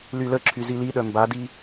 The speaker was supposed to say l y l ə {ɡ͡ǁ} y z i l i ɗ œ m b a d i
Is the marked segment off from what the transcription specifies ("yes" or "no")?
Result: yes